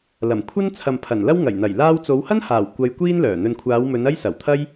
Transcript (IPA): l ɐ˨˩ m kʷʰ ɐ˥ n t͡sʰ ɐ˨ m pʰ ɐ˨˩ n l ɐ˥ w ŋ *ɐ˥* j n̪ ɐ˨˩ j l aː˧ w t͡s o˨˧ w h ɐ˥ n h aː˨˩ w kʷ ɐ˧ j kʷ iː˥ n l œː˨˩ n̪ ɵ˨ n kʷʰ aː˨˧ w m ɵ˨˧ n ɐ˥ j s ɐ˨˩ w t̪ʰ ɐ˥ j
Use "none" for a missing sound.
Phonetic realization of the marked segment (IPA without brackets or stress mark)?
ɐ˨˩